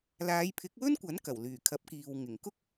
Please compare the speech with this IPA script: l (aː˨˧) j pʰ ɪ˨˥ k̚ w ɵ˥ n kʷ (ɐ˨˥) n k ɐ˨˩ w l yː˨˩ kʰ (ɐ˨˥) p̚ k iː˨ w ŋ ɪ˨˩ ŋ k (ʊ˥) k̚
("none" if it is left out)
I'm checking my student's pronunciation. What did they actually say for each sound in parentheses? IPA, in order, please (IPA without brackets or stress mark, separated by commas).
aː˨˧, ɐ˨˥, ɐ˨˥, ʊ˥